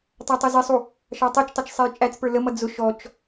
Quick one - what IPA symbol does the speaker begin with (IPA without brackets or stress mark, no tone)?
tˤ